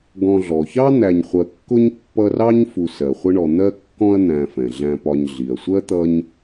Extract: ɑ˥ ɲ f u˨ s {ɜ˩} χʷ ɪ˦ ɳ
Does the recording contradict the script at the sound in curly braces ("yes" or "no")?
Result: no